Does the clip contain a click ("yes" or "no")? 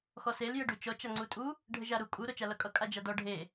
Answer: yes